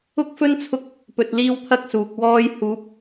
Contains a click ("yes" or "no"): no